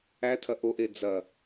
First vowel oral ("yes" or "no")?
yes